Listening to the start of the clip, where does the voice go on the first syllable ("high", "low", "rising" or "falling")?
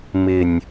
low